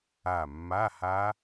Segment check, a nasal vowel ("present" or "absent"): absent